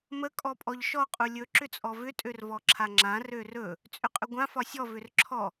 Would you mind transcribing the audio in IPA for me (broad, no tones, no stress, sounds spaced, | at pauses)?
m ə kʼ ɔ pʼ ɔ ʎ ʃ ɔ qʼ u lʲ ɵ ǁ ʏ t͡sʼ ɔ v ʏ tʼ ø r v ɔ ǁʰ a ŋ͡ǁ ã r ø r ɵ | t͡sʼ ʏ qʼ ʏ ɡʷ ã f ɒ sʲ ɔ v ʏ r ǁʰ ɔ